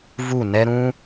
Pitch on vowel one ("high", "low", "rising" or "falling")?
falling